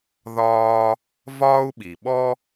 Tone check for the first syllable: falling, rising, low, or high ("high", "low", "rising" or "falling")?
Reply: high